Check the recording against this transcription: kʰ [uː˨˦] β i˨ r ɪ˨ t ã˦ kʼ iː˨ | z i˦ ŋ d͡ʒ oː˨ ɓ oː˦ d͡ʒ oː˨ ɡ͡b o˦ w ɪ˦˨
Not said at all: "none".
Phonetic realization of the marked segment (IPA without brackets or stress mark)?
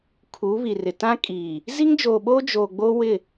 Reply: uː˨˦